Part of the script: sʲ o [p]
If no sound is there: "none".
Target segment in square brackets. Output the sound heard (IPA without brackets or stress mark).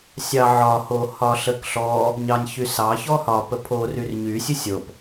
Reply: p